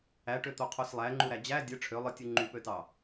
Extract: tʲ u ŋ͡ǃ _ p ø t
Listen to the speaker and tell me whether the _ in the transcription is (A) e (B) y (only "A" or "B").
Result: B